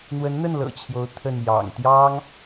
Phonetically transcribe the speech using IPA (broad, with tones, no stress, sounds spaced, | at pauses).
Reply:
n̪ w ə˧˥ n n̪ ə˥˩ n l ɤ̰˨˩ t͡ɕʰ j o˧˥ ʊ̯ t̪ʰ ə˥˩ n j ɑ̰˨˩ ŋ t̪ j ɑ˥ ŋ